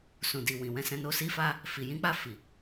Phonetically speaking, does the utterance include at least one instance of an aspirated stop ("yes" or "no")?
no